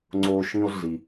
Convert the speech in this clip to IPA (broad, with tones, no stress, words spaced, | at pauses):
ŋ͡ǀo˦ ʃĩ˦o̯ɮi˨